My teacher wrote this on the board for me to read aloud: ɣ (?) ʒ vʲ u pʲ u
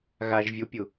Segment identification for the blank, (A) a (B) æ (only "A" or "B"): A